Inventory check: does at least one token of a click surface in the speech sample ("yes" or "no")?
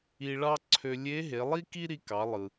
yes